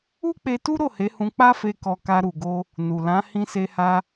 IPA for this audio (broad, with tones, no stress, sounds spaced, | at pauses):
u˦ k͡p e˧ t u˦ ɾ o˦˨ h e˨˦ h ũ˧ k͡p a˦ f e˧ k ɔ˧ k a˧ ɾ u˨ ɡ o˧ | n u˨ l ã˨˦ h ĩ˧ s e˧ h a˧